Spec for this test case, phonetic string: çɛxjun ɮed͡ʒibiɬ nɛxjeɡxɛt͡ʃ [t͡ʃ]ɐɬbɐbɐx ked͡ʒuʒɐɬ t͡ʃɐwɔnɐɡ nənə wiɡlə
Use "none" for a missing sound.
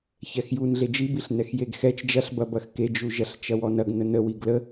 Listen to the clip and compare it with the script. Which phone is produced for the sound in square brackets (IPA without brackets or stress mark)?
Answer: d͡ʒ